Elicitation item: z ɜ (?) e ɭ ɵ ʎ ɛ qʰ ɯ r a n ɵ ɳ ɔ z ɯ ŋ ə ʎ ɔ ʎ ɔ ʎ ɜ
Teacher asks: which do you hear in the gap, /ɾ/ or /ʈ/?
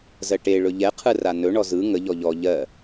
ʈ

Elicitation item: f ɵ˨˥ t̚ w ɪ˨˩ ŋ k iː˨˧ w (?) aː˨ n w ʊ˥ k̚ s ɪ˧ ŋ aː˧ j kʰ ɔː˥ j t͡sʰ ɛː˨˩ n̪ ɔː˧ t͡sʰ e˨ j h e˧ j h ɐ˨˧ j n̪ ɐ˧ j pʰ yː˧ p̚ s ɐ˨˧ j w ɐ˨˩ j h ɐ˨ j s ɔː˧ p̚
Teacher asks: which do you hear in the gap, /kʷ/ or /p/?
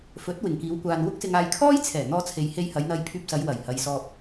kʷ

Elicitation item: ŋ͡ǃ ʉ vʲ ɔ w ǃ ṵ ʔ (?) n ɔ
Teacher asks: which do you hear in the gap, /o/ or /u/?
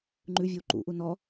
u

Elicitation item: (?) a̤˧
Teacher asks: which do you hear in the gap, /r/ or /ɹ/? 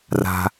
r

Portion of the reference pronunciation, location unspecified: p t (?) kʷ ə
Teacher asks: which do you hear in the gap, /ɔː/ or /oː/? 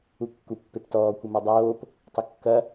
ɔː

